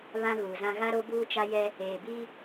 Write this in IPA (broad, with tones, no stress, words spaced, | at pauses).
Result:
βã˦ɣuː˨zã˦ ɣa˦ɾo˦buː˦ t͡ʃa˦jɛ˦ | eː˨bi˦